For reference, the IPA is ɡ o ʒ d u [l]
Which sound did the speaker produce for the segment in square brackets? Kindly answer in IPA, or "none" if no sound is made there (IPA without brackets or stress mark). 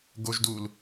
l